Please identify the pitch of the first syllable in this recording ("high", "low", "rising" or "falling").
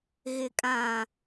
low